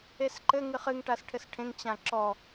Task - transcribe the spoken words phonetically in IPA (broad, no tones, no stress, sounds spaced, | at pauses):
e s ǃ ɘ ŋ ɨ χ ɨ ŋ ʈ a s ʈʰ ɘ s ʈʰ ẽ ŋ t͡ɕ ã ǁ ɔ